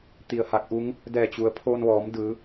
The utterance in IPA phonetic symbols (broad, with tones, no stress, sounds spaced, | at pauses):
t̪ i˧˩ ə̯ h a˧˥ k̚ ʔ u˧˥ ŋ | d ɛː˧˩ t͡ɕ u˩˧ ə̯ pʰ oː˧ n ʋ ɔː˩˧ m d ɯː˩˧